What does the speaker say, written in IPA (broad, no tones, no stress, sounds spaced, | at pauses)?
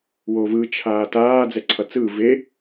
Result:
w o v ɯ t͡ʃʰ aː t aː d͡z ɛ ǀʰ ʌ t͡s ɯː v e